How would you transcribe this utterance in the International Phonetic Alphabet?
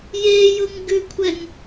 jejʊŋɡʉkʷʰɛŋ

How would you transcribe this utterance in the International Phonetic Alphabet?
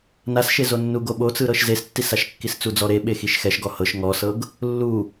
nasʃezonːu ɡoɓot͡sɯɾɤʃ zestːisaʃkːis t͡sud͡zɔɾe ɓexiʃxɛʃ ɡɔhɤʃ ŋɔsɤɡ | lːu

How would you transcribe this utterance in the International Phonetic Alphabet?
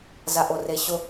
zaʔoreɕʊ

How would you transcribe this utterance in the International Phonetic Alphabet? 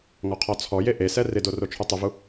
ŋɔqʰɔt͡sʰɔje ʔesɛ rɪdo rot͡ʃʰutˤɪvu

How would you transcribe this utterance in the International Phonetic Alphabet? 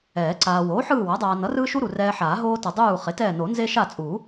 ɛː˨˩˦ǀaː˨ woː˩˥ħɯː˦˨wa˩˥dˤaː˨ nʌ˩˥rɯː˦ʃu˦ ɾu˨rɛː˦ ħaː˨˩˦ɦoː˦ tʌ˨ dˤuː˦˨ χe˩˥tɛː˦˨ no˨˩˦nze˦ ʃa˦˨t͡sʼu˨˩˦

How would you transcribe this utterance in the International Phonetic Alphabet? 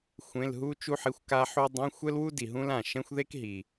xʷẽ˧˥˧lɦu˥t͡ʃu˥ħi˧˥˧xʷ ka˥ħu˥ dˤɛ̃˧˥˧xʷɛ˥lwu˥di˨ ɦũ˥lã˥˩ ʃɛ̃˥xʷðe˥k ɦi˨

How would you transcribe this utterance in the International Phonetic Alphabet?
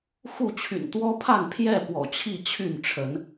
xu˥˨t͡ɕʰy̰˨˩n t̪wɔ˦pʰa˥˨npʰjɛ˥˨ pwɔ̰˨˩t͡ɕʰi˥˨t͡ɕʰy˥˨nʈ͡ʂʰə˨˦n

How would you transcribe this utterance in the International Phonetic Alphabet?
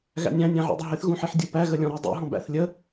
ɣæ̰nʲæ̃ nʲæ̃ʕṵdˤɪɦɪθ ɣũħiħdʲupæ ɣəlʲɔ̃ɾi dˤṵ ɦɔ̃bæ̰θ lʲə

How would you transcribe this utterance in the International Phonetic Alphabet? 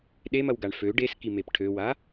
ɗemɐwɡaɳ fø ɖeskimep ʈʰøwa

